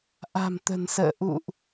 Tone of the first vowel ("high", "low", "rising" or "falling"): low